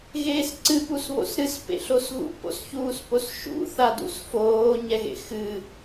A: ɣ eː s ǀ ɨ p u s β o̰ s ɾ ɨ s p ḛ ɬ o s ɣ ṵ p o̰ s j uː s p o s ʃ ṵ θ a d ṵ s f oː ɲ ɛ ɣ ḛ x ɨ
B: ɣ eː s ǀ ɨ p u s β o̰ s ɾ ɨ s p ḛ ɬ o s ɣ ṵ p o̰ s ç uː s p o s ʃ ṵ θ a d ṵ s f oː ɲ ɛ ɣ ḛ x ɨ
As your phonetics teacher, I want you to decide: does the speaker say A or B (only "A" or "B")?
B